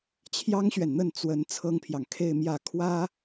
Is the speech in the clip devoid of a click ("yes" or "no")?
yes